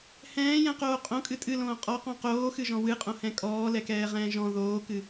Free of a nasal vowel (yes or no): no